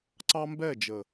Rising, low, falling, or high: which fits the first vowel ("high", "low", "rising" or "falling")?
high